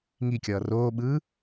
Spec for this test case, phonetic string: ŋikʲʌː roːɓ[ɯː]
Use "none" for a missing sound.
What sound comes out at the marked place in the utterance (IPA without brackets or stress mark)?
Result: ɯː